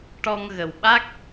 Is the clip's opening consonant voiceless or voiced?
voiceless